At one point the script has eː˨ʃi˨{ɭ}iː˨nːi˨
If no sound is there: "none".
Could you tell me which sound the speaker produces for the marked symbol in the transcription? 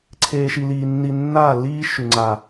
l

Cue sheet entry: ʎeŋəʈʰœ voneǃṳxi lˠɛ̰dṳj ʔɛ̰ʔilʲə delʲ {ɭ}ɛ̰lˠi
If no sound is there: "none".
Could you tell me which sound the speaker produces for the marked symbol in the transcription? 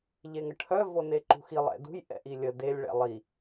ɭ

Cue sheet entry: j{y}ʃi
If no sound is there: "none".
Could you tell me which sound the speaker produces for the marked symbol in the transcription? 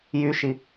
y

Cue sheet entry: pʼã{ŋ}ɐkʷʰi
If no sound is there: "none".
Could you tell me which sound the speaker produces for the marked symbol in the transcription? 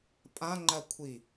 ŋ͡ǃ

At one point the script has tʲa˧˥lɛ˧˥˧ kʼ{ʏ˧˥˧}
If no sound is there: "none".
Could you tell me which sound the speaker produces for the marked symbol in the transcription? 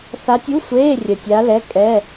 ɛ˧˥˧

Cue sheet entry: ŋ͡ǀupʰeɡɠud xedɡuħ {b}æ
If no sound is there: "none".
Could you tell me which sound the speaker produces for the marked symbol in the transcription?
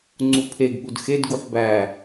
b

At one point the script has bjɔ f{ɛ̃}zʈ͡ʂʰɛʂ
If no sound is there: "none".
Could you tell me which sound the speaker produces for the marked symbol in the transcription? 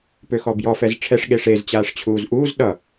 ɛ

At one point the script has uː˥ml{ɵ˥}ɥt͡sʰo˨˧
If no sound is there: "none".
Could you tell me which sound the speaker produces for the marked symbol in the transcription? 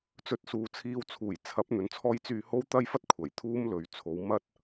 ɵ˨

